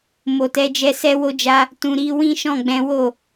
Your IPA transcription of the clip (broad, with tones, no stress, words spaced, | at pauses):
mo˨tɛ˨˦d͡ʒɛ˧sɛ˦ wo˧d͡ʒa˧ | tũ˨ ɾi˨˦wĩ˦ ʃɔ̃˦˨ɡ͡bɛ̃˨˦wo˦˨